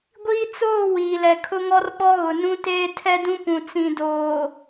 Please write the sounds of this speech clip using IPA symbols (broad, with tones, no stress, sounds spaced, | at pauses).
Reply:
ɡʷ iː˦ t͡s oː˦˨ w iː˨ l ɛ˨ kʰ ʊ˦ ŋ ɔ˦ r ɓ ɔ˦ ɣ ʊ˨ n ũ˦ t eː˦ tʰ ɛ˦ d ũ˦ p ũ˨ t͡s ĩ˨ d oː˨